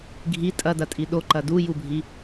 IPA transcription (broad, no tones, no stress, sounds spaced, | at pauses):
ɡʱ i tʼ ɐ d ɐ tʼ i ɗ o ǃ ɐ d u j u bʱ i